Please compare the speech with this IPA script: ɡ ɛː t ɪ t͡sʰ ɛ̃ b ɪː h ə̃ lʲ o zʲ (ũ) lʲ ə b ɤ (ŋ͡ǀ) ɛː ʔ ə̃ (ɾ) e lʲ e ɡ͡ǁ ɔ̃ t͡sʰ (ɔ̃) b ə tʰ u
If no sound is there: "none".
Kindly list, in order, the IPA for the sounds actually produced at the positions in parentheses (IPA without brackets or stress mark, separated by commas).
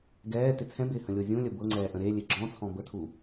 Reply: ũ, ŋ͡ǀ, ɾ, ɔ̃